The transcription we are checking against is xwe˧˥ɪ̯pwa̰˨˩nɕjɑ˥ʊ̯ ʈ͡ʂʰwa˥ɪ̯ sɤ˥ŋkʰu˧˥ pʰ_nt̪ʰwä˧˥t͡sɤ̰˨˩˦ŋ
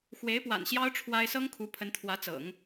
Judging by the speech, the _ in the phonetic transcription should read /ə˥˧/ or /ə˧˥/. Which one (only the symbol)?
ə˧˥